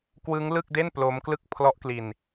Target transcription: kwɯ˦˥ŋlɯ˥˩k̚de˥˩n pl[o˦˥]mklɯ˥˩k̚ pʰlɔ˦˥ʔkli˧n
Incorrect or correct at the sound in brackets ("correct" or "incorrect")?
correct